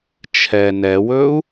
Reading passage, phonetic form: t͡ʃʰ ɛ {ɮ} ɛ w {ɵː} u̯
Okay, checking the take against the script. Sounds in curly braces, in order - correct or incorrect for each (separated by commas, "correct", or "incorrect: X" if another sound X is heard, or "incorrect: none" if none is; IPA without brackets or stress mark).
incorrect: n, correct